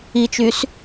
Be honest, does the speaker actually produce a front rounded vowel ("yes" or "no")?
yes